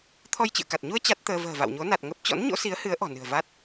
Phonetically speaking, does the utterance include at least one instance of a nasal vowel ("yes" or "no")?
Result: no